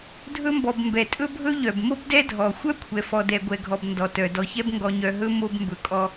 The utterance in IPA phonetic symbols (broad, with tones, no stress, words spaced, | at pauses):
dʱɵ˥mbɔ˨b mbɛ˩tʼɵ˥bʱɵ˥ ʎœ˩bmo˥b dɛ˦dʱɔ˩xʷœ˥ kʷʰɛ˨fɔ˨ dɛ˨ɡʷɛ˨ɡʱɔ˨b ndɔ˩tœ˩ dɔ˨çɛ˥b ŋɡɔ˨ɲœ˨ ɦɵ˥mo˦b mbɵ˨kʼɔ˦